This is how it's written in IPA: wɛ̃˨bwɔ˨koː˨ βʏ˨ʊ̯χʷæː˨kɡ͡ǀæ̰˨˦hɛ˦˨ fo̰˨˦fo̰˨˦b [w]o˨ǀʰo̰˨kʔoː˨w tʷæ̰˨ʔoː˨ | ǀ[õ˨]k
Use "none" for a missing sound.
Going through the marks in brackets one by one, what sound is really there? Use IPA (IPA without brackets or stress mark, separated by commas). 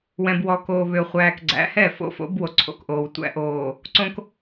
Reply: w, õ˨